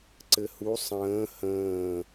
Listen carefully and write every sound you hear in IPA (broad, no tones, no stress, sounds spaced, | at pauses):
ǀ ɘ h u sˤ ə̃ː h ə̃ː